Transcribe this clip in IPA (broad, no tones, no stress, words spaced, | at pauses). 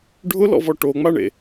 ɖʱʊlɔ̰vɔ ʈoŋ͡maɳḛ